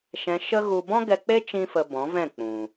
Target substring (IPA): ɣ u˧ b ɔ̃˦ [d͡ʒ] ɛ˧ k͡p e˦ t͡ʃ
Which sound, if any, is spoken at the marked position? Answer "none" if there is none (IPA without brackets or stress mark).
ɡ